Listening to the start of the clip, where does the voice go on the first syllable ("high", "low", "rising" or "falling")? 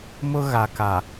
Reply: high